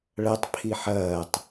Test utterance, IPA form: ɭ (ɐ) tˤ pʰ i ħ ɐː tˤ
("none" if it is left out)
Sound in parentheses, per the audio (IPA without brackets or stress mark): ɐ